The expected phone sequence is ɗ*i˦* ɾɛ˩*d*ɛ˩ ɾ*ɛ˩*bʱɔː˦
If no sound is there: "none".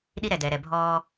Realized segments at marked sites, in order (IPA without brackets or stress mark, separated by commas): i˦, d, ɛ˨